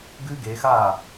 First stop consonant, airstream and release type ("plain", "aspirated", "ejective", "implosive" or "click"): plain